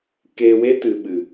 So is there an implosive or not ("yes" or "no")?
yes